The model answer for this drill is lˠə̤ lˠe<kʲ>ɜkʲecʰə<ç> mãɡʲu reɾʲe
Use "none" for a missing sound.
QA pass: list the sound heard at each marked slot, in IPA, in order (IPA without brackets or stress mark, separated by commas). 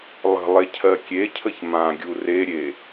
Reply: cʰ, ç